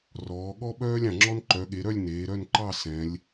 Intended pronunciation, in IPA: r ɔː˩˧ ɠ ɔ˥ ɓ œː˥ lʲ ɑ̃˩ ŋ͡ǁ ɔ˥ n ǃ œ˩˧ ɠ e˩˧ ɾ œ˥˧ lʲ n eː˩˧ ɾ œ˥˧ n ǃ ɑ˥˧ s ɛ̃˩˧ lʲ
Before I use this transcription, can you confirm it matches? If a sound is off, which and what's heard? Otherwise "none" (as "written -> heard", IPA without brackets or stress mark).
none